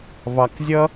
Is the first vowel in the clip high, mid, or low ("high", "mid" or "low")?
low